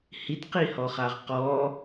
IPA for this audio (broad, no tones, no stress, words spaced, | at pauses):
hitqihɔχaʁ qɔ